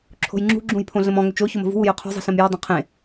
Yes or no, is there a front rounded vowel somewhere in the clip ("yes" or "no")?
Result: yes